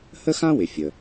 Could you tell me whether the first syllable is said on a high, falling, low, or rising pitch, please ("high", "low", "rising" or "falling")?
high